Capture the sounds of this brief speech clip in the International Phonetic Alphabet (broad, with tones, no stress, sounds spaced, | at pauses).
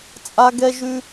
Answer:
t͡sʼ a˥ ɡ ɛ˥ ʒ ʉ˥